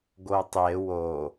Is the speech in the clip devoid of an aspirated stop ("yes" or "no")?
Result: yes